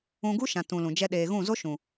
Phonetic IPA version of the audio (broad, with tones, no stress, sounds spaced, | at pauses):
ũ˧ ɡ u˦ ʃ ã˨ t ũ˨ l ũ˨ d͡ʒ ɛ˦ ɗ eː˧ ɣ ũ˦˨ z o˦ ʃ ũ˨